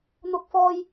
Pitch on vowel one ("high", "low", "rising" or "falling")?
high